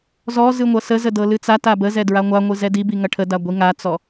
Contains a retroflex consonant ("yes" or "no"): yes